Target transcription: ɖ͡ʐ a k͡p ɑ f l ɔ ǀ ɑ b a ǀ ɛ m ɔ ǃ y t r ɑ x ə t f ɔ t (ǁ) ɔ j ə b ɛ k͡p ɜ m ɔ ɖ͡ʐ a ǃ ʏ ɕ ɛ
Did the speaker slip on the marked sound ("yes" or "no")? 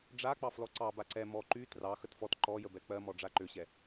yes